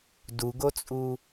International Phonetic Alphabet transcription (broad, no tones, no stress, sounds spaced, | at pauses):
d u ɡ o t͡sʼ u